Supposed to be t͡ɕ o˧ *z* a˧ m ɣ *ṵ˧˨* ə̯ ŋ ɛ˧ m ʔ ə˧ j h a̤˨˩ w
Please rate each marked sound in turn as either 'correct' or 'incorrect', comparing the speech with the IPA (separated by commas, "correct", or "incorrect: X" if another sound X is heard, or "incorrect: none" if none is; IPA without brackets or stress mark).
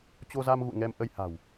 correct, correct